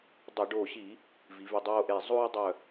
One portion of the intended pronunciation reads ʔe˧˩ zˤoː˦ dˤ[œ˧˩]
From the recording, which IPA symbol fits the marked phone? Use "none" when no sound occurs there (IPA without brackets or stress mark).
œ˧˩